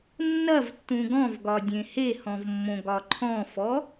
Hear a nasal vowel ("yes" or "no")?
yes